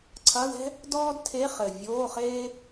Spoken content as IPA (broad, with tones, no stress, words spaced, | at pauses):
ǀʰɐ˧˥˧ðɛ̤˥ | dɔː˥dtʰeː˧˥˧χ ɘ˨˩vʲoː˧˥˧χeː˥